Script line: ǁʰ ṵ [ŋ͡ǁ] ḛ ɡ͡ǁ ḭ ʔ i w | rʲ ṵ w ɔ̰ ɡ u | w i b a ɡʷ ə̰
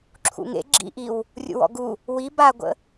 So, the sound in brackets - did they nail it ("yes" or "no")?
no